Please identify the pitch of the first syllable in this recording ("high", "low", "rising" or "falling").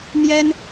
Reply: high